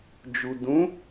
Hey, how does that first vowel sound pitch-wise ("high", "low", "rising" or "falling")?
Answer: low